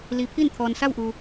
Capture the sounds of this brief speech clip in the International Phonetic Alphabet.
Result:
l i˩ pʰ i˥˨ n t̪ʰ ɔː˩ n s a˥˨ w ʔ u˩

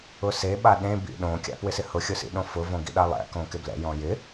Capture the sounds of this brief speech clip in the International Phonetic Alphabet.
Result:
ʊ s e ɓ a ɗ ẽ b ḭ ɗ õ kʲ a̰ p w ɪ s ɪ h ʊ xʲ ʊ s ḭ ɗ õ f ʊ v õ ɡ ḭ ɗ a lˠ ɛ̰ k õ k ɪ b l ɛ̰ j ɔ̃ j ɪ

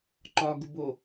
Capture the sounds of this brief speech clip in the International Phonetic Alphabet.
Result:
ǃ ɒ ɡ u b o

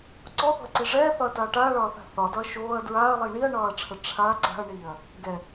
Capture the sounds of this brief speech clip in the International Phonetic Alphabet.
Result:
ǀ ɔ θ ɔ̤ ɐ̯ ǀ i ʐ ɛː θ ɒ ɐ̯ t aː ʈ aː ɭ ɒː θ a̤ θ ɒ d ɒ ɐ̯ ʃ oː ɐ̯ d ɹ aː ɐ̯ lˠ iː ɳ i ɐ̯ ɳ ɒː ɐ̯ ʈ͡ʂʰ ə ʈ͡ʂʰ a ǀ a̤ ɐ̯ ɳ iː ɐ̯ | ɡ ɛ

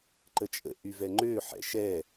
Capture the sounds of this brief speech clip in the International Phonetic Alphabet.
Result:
ǃ ə t͡ʃʼ ə̰ ʔ y v ɛ ŋ͡ǃ ø ħ ɛ̰ ʃ ɛ

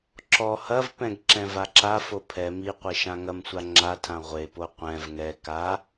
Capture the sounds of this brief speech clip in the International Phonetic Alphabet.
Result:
ǁ ɔ h ɐ v p ɛ̃ ɡ ǁ ɛ̃ v a ǁ a f o pʰ ɛ m i qʷ e ʃ ã ŋ ɐ m sʷ a ŋ͡ǁ a tʰ ã ʁʷ e p o qʷ ɛ̃ v ŋ ɛ k a

